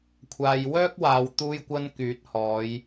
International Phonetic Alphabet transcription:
kʷʰ aː˨ j w œː˥ k̚ w aː˨ w t̪ uː˧ j kʷ ɐ˧ n k yː˨˥ t̚ h ɔː˨˧ j

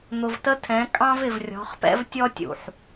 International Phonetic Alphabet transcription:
n̪ ʊ˨ v t ə˦ tʰ ɛ̃˨˦ kʼ ɑ̃˦ v ɪ˨ v rʲ ɔ̤˨˦ χ p ɛ̰˦ v tʲ ɔ˦ tʲ ṵ˨ ħ

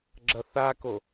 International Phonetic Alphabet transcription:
ɡ͡ǁ ɐ θ a k o

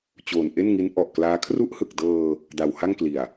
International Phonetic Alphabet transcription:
t͡ɕ oː˨˩ n ʔ e˥˩ n ŋ i˦˥ n ʔ ɔ˨˩ ʔ k l aː˦˥ kʰ r u˦˥ ʔ h ɯ˨˩ k̚ d ɤː˧ | d a˨˩ w h a˥˩ ŋ k l i˨˩ a̯

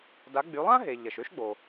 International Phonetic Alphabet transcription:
d a˩˧ ɡ͡b y˩˧ lˠ ã˥ ɦ e˩ ʎ ɐ˩ ʃ ø˥ ʃ ɡ͡b o˩

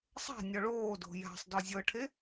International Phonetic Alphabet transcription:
sˤ a̤ nʲ ɔ ɭ oː d o̤ j a̤ sˤ d ɔ zʲ ɤ ʈʰ e

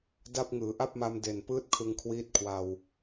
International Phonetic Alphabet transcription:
d a˦˥ p̚ ŋ ɯː˩˦ ʔ a˥˩ p̚ m a˧ m d e˨˩ n p ɯː˦˥ t̚ kʰ ɯ˧ ŋ kʰ w iː˦˥ t̚ kʰ w a˧ w

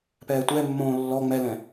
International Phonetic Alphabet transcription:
p ɛː tʷ ɛ mː õː lː ɔ ŋ͡m ɛ l ɛ̃

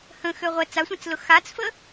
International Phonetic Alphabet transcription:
h ə̃ x ø ʁʷ ɛ t͡s a sʷ ã t͡s l ʊ x a t͡s f ə

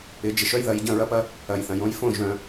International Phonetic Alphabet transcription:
ɪ˨˩˦ d͡ʒ ɪ˨ ʃ œ˦ j ð ɐ˨˦ j ɟ ɐ̃˥˩ ɹ ɐ˦ p ɐ˦ | ɐ˨ j θ ɐ̃˨ j õ˦ j f õ˥˩ ʒ œ̃˨

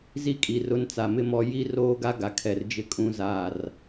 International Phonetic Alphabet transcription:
z i˦ kʼ i˨ r ʊ˦ n t͡s a˨ m ɪ˦ m ɔ˦ j i˦ r oː˦ ɡ a˦ ɡ a˨ kʰ ɛ˨ r d͡ʒ ɪ˦ kʼ ũ˦ z aː˦˨ r

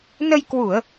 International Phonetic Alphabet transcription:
n ə˧ j k w u˧˩˨ ə̯

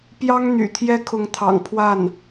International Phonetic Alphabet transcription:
p j ɑ˥ ŋ n̪ y̰˨˩ t̪ʰ j ɛ˥ kʰ ʊ˧˥ ŋ t̪ʰ ɑ̰˨˩ ŋ pʰ w a˥˩ n

